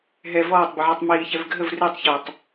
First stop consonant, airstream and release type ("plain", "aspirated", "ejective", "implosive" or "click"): plain